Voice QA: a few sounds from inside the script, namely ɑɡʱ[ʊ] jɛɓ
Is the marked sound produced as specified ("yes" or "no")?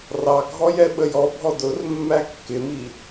no